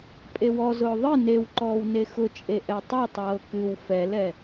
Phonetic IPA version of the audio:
pʼ e w ɔ z ʊː ðˤ ɨ n e w ǃ ɔː w n e x ʊ t͡ʃʼ e ʔ ɛ tˤ ɛ tˤ ɤː k ɨ w f ɛ l ɛ

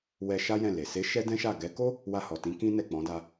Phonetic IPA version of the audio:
w ɛ˧ ʃ a˦ j ɛ̃˦˨ l e˨ s e˨˦ ʃ ɛ˦ d ɛ̃˦ ʃ a˦˨ ɡ ɛ˨˦ k o˦ | w a˧ h ɔ˨ t ĩ˨˦ k ĩ˦ n ɛ˦˨ k͡p ɔ̃˨˦ d a˧

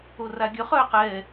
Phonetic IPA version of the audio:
o r a ɡʲ œ χ œː q ɛː

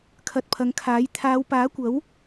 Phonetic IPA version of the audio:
kʰ ɐ˨˥ t̚ pʰ ɐ˨˥ ŋ kʰ aː˨˥ j t̪ʰ aː˨˧ w p aː˨˥ kʷ ɐ˨˥ w

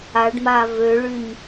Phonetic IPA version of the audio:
a ɖ m a v ø ɭ y ɲ

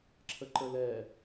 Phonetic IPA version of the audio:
ǁʰ ə ǃ ə l ɛ

